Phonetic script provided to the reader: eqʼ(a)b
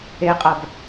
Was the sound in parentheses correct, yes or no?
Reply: no